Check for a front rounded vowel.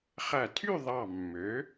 present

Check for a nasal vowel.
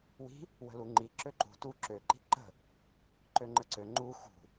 absent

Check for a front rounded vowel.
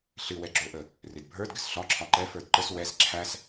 absent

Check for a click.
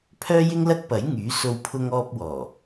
absent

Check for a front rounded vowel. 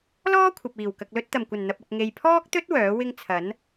present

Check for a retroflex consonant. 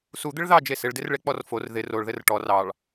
present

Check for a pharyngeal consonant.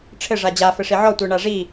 present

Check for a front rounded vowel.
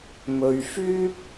present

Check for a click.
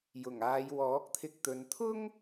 absent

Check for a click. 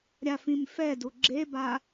present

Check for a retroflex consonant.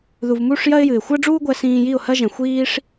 present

